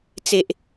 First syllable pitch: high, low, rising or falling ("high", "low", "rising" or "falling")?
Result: low